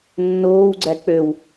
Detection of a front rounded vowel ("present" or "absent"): present